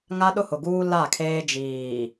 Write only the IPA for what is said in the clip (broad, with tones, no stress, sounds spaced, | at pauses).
ŋ a˦ ɗ ʊ˦ h ʊ˨ ɡ uː˦ l a˦˨ kʰ eː˦ d͡ʒ iː˨